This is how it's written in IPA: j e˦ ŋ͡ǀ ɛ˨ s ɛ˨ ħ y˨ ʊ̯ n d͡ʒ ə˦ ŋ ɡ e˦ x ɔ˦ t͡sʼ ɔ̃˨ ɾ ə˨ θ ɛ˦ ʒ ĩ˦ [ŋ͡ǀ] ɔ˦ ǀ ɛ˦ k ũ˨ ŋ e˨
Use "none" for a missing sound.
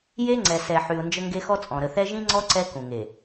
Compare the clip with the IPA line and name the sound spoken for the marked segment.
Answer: ŋ͡ǀ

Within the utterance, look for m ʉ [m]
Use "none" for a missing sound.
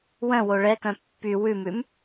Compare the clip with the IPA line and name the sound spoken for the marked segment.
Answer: m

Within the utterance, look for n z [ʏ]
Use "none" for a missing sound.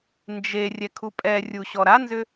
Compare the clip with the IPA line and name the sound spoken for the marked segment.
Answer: ʏ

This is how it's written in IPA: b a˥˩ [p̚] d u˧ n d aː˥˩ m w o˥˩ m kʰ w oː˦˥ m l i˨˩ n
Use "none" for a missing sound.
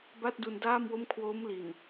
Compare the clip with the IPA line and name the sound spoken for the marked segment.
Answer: t̚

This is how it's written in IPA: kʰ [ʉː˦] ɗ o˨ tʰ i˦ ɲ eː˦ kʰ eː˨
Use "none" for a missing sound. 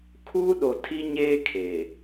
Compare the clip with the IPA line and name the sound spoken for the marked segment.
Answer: uː˦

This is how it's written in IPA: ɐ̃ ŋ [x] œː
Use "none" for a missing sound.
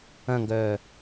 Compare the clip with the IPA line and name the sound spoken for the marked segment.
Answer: ɡ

